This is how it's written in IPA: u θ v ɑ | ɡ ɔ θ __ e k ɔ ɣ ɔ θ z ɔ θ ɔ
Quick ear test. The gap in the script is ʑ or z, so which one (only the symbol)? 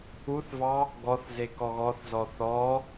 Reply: z